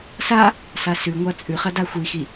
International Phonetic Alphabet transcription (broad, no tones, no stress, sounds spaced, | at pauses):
s a | s a s ʉ ŋʷ a t͡sʼ ʉ χ ɐ d a xʷ i x i